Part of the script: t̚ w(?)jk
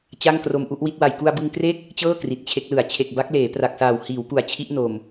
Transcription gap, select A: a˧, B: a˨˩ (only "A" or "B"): B